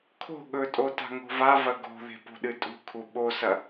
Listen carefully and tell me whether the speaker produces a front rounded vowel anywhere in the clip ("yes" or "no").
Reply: no